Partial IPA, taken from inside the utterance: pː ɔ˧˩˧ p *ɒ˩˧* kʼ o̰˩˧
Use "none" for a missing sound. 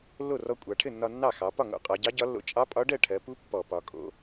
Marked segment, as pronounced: ɒ˩˧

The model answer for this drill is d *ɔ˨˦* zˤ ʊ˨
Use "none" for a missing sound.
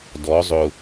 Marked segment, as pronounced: ɔ˨˦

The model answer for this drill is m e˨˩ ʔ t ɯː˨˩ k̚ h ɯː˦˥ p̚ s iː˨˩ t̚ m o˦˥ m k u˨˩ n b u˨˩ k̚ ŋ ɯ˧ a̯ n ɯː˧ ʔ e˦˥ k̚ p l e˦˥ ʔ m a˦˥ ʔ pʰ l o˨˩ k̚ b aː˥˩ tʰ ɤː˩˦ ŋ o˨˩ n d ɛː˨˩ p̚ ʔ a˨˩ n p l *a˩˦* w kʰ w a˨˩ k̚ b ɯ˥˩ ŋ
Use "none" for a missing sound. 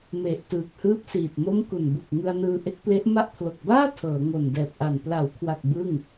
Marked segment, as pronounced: a˩˦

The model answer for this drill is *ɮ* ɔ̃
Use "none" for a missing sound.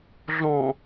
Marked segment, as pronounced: ɮ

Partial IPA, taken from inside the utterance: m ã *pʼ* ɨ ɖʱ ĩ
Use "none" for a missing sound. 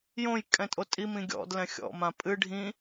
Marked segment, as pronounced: pʼ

